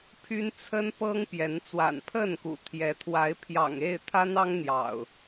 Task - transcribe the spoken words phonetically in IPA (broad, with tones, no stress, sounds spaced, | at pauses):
pʰ y˦ n t͡sʰ ə˦ n p ɤ˦ ŋ p j ɛ˨˦ n t͡s w a̰˨˩ n pʰ ə˥˨ n k ṵ˨˩ t̪ʰ j ɛ˨˦ t̪ʰ w a˨˦ ɪ̯ pʰ j ɑ̰˨˩ ŋ e˥˨ ɪ̯ t̪ʰ a˦ n ɑ˦ ŋ n̪ j ɑ̰˨˩ ʊ̯